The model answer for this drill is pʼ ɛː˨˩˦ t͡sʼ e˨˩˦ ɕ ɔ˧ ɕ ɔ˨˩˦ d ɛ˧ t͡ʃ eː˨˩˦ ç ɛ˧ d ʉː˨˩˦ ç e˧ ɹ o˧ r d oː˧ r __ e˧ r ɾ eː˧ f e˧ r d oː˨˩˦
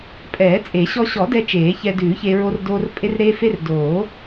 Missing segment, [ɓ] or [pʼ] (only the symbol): pʼ